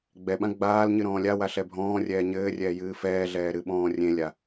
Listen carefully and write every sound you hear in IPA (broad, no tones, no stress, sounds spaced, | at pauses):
ɡ͡b ɛ ɓ ã ɡ͡b aː l ɲ ɨ ɾ ɔ̃ː lʲ a w a ɬ ɛ bʱ ɔ̃ː rʲ ɛː ɲ ɘː rʲ ɛː j ɨː f ɛː ɮ ɛː ɾ ɨ ɓ ɔ̃ː rʲ ẽ lʲ a